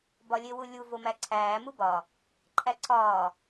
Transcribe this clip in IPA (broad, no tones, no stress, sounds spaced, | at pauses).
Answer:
b ɒ lʲ e w u lʲ u v o m æ ǀʰ æː m u b ɒ | ǃʰ æ ǀ ɒː